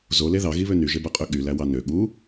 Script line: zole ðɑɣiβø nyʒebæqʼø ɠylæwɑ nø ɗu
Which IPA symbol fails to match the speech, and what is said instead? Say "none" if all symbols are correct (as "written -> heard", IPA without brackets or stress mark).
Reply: ɗ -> ɠ